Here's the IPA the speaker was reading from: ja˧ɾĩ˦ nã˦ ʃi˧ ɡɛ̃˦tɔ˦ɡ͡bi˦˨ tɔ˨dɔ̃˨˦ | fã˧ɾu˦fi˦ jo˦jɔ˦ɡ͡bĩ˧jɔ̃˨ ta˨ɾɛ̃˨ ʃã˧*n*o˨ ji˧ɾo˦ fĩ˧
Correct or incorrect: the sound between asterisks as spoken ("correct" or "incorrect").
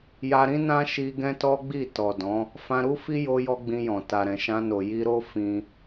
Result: correct